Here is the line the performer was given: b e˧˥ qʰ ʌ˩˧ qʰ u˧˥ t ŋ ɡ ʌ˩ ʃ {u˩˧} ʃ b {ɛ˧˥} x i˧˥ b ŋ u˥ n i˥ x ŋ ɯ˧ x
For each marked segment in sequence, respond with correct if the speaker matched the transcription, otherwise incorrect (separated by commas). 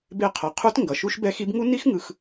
incorrect, correct